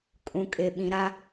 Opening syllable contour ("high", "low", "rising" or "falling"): low